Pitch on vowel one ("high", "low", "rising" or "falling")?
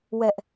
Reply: high